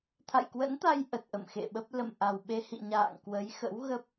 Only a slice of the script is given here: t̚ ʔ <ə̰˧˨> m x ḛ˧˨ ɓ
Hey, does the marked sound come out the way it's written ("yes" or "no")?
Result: yes